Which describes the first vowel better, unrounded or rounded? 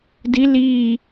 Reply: unrounded